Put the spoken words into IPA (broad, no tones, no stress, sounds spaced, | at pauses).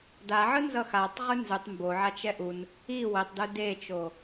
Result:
d a ʕ ɯ n z ʌ x a tˤ ʁ ɯ n z u tˤ m b o ʕ a t͡ʃ ɛ ʔ u n | i w e tˤ d ɯ d e t͡ʃ o